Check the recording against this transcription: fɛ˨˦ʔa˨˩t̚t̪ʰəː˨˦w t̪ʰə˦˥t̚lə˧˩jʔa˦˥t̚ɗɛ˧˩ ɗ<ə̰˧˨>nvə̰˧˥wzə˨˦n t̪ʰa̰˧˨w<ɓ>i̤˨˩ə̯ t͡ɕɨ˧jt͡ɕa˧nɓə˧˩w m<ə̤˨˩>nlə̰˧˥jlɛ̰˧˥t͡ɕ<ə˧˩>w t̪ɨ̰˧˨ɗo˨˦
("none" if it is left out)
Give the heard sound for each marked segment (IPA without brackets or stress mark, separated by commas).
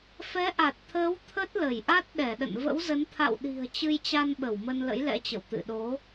ə̰˧˨, ɗ, ə˧, ə̰˧˨